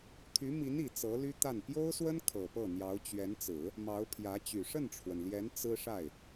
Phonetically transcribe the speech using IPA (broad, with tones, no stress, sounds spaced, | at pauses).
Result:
t̪ʰ y˧˥ m i˧˥ n i˨˩ t͡s ɤ˧˥ l y˥ t̪ a˥˩ n p j o˥ ʊ̯ s w ə˥ n kʰ ɤ˨˩ p ɤ˥˩ n̪ j ɑ˧˥ ʊ̯ t͡ɕ ɥ ɛ˧˥ n t͡s ɹ̩˨˩˦ | m ɑ˧˥ ʊ̯ pʰ j ä˧˥ t͡ɕ y˨˩ ʂ ə˥˩ n ʈ͡ʂʰ w ə˩ n l j ɛ˧˥ n t͡s ɹ̩˥ ʂ a˥˩ ɪ̯